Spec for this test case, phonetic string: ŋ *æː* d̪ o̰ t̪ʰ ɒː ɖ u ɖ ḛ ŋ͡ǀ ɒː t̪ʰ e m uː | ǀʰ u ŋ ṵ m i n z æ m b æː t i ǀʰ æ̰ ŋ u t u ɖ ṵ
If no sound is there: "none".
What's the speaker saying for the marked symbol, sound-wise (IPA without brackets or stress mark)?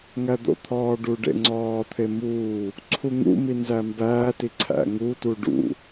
æ